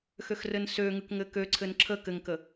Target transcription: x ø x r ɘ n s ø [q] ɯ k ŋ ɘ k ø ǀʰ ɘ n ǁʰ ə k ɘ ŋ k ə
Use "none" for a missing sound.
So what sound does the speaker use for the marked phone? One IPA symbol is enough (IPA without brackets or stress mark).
ŋ